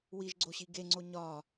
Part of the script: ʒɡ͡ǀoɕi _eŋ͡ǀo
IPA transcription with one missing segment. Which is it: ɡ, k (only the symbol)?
ɡ